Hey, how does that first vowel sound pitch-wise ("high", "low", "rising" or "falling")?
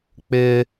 high